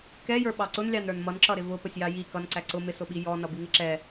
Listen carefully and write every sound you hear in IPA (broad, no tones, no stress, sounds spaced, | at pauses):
k ɛ j ə˞ ɓ ɑ ǀ ʊ n lʲ ɑ n ɾ ə˞ n m ʌ n ǁ ʌ ɾ ɪ v ʊ p ə sʲ j ɑ j i k ʌ n ǀ æ ǀ ʊ m ɪ s ʊ ɓ i j ɔ n ʌ b i ŋ ɪ ǁ ɛ